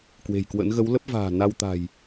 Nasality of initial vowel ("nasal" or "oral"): oral